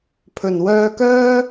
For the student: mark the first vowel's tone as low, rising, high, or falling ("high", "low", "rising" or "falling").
low